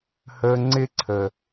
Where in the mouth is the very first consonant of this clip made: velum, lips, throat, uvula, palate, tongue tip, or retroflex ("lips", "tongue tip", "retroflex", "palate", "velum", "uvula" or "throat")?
throat